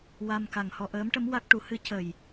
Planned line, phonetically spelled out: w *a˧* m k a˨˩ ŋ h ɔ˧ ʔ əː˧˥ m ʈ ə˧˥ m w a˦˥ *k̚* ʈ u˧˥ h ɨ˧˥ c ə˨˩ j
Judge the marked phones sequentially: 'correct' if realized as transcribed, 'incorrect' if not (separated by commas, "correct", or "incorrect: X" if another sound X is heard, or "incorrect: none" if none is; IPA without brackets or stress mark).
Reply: correct, correct